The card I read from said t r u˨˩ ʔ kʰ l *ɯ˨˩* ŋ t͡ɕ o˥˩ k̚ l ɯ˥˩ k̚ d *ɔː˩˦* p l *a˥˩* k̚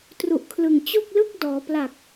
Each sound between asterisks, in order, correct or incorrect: correct, correct, incorrect: a˨˩

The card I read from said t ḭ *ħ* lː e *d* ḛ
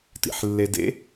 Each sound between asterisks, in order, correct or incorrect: correct, correct

